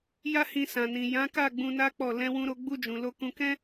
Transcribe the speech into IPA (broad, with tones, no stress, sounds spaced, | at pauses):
j a˧ h ĩ˨ s ã˨ n ĩ˨ j ã˨˦ k a˦˨ ɡ͡b ũ˧ n a˦ k͡p ɔ˦˨ l ɛ̃˧ w ũ˧ ɾ o˧ ɡ͡b u˧ d͡ʒ ũ˨ l o˧ k ũ˧ k ɛ̃˦